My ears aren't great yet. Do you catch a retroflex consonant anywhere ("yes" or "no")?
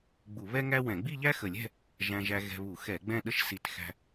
no